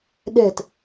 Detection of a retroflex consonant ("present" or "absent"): absent